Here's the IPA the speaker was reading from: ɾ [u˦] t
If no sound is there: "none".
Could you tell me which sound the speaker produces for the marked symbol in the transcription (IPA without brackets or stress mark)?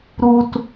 u˦